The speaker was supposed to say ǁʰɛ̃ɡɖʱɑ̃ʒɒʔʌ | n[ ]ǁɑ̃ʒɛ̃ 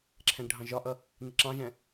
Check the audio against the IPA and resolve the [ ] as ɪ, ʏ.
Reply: ɪ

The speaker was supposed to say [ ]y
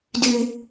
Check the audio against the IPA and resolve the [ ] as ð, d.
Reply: d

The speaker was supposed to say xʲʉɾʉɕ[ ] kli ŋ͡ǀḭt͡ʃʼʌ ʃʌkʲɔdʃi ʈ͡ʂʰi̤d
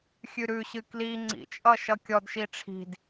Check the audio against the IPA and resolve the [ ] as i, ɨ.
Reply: ɨ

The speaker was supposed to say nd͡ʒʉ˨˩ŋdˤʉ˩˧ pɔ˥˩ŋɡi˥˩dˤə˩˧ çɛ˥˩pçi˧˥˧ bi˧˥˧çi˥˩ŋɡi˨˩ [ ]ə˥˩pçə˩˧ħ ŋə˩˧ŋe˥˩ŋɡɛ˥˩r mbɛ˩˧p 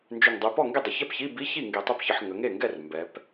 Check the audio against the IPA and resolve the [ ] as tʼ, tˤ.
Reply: tˤ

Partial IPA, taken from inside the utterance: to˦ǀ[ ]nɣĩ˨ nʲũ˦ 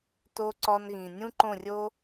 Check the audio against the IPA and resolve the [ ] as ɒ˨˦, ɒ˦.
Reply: ɒ˦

